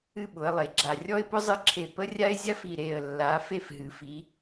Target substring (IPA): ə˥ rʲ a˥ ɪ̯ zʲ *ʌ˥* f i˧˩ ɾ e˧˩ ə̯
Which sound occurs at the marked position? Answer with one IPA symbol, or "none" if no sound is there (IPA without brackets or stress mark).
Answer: a˥